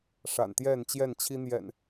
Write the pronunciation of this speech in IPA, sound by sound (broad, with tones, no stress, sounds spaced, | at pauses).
ʂ a̰˨˩ n t̪ j ɛ˥˨ n t͡ɕ j ɛ˥˨ n t͡ɕʰ i˦ n̪ j ɛ̰˨˩ n